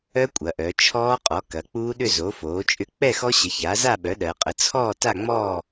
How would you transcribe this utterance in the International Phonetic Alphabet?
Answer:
œ˦˥ kʷʼ ɐ˩˧ ʔ œ˩˧ t͡ʃʰ ɔː˦˥ qʼ ɔ˩˥ k ɐ˩˧ k͡p uː˦˥ ɗ ʏ˥˨ z o˩˥ f oː˩˥ t͡ʃʼ ʏ˦˥ k͡p ɛ˥˨ x ɔ˦˥ ɕ ə˩˥ ç a˩˥ z a˥˨ ɓ œ˩˥ ɗ ɜ˩˧ qʼ ə˩˥ t͡sʰ ɔː˥˨ t a˥˨ ŋ͡m ɔː˥˨

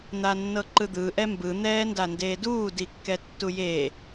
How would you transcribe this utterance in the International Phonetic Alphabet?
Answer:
n̪ a nː ɤ ǃ ɯ d̪ ɯ ʔ ɛ m b ɯ n̪ ɛː n d a n d eː d uː d i kː ɛ tː u j e

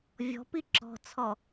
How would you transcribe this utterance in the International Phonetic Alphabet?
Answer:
vʲ ɔ̤ p i ǁ ɔ̤ t͡sʰ ɔ

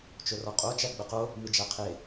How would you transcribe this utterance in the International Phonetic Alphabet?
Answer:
t͡ʃ ʊ r ɔ qʼ o t͡ʃ æ ɡ͡b ə q o | m ɨ d͡ʒ æ qʰ e

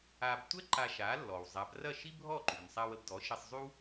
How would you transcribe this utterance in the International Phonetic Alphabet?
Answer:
a˧ b tʷ ɛ˥ ǃ a˧ ʃ a˩˥ lː ɔ˩ w zˤ a˩˥ b r ɐ˥˩ ʃ i˥ bʱ ɔ˥˩ ǃ y˩ n sˤ a˧ w ə˧ b d ɔ˩˥ ʃ i˧ sˤ zˤ y˥ w

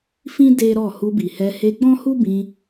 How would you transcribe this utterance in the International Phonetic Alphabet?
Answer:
f ĩ˦ d e˦ ɾ ɔ˦˨ h u˧ b i˨ h ɛ˧ h e˧ ɡ͡b ɔ̃˦ h u˦ b ĩ˧

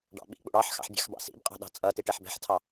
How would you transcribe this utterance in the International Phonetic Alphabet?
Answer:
ɖ ɑ̰ ɓ ḭ k͡p ṵ ɽ ɑ ħ x ɑ̰ ħ bʲ ɑ̤ x b ɑ̰ s ḭ b qʼ ɑ̤ ɗ ɑ̤ t͡sʼ ʌ t i ʈ ɛ ħ b ɛ̤ ħ tʰ ɑ

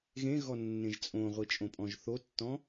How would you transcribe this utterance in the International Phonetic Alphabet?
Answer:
ɣ ẽ ɣ ɔ nː ẽ ʒ t͡sʼ õ ʁʷ i t͡ʃʼ õ pʼ ɔ̃ ʒ θ o tː ɔ̃

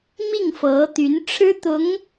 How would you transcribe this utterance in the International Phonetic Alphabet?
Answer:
m i˥˩ ŋ f ɤ˧˥ t̪ y˧˥ n ʈ͡ʂʰ ɻ̩˥ t̪ ʊ˧˥ ŋ

